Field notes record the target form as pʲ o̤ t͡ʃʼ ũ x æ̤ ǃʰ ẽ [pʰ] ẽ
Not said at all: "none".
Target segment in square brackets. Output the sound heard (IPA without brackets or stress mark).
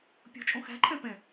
p